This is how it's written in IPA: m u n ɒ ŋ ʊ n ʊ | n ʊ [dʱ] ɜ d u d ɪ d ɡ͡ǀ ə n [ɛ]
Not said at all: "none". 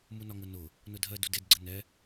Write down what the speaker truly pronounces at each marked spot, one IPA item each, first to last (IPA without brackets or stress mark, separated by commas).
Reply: dʱ, ɛ